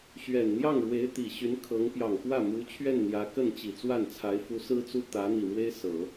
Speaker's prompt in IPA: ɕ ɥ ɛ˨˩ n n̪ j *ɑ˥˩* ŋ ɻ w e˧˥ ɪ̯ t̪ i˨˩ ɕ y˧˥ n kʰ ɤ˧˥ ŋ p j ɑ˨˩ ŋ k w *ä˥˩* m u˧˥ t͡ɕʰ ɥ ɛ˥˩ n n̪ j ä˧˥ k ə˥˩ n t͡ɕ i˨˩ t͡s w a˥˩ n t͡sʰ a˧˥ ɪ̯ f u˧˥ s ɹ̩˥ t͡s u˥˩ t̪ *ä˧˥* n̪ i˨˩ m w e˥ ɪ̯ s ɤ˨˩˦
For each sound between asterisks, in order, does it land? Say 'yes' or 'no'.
yes, yes, yes

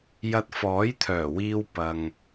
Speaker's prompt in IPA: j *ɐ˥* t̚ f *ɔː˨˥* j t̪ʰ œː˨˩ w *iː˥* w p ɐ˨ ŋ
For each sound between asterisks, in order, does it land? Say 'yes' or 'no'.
no, yes, no

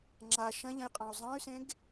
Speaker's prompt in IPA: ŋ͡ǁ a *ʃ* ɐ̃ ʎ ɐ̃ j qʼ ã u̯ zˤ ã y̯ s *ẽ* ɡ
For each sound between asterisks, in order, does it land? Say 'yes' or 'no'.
yes, yes

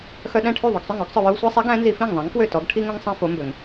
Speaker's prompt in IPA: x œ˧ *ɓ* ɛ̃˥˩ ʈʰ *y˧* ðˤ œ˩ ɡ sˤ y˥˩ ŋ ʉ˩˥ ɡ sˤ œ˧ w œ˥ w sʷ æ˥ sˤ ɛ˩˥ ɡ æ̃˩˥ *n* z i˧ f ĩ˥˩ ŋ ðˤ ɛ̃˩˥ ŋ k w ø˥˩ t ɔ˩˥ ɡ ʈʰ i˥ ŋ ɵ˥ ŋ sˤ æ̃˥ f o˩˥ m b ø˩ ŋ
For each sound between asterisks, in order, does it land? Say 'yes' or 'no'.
no, no, yes

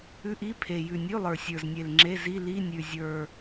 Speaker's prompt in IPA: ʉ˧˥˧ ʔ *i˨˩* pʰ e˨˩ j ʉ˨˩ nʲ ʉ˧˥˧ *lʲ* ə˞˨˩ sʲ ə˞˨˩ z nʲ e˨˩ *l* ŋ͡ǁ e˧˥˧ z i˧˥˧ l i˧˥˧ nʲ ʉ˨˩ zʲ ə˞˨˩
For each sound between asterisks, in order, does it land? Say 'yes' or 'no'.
no, no, yes

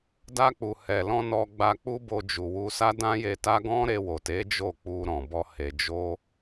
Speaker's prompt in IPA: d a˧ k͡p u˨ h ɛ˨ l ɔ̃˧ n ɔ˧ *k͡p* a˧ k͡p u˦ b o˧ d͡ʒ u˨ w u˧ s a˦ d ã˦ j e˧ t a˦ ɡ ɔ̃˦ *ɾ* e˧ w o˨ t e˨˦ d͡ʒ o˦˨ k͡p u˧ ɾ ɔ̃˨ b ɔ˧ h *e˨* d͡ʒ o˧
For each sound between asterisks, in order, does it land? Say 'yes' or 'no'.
no, yes, yes

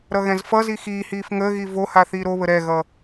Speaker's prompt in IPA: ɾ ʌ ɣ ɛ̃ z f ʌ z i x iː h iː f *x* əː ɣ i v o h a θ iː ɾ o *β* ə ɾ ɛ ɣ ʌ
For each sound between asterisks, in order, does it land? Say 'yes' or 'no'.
no, yes

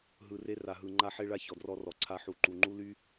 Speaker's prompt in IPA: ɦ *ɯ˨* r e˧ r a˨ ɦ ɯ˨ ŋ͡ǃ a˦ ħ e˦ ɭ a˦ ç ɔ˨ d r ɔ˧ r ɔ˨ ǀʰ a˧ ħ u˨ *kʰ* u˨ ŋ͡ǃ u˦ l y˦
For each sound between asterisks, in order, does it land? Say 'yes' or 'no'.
yes, no

